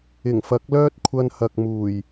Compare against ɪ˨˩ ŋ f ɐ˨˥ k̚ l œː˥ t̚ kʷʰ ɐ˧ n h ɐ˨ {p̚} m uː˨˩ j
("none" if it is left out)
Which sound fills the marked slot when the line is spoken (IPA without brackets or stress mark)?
k̚